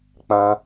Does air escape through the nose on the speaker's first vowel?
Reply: yes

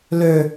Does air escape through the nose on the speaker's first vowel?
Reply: no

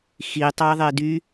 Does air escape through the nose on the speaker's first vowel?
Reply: no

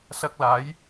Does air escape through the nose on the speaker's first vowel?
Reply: no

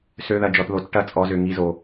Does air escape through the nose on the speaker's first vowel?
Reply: no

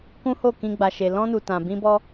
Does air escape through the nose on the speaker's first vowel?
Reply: yes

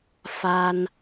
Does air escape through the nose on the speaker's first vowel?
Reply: no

